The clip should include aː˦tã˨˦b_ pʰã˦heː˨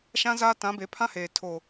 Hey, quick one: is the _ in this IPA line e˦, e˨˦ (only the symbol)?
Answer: e˨˦